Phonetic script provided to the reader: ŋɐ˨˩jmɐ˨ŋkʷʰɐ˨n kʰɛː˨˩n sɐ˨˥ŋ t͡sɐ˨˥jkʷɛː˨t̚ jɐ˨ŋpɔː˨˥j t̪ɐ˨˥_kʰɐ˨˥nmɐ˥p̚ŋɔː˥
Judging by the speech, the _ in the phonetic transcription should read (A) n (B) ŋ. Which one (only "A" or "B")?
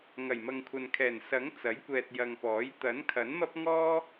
A